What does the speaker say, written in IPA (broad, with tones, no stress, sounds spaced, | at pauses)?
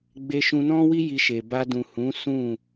ɡ͡b e˧ ʃ ũ˧ n ɔ̃˦ w i˦ j i˧ ʃ e˨ b a˧ d ũ˨ h ũ˨˦ s ũ˦˨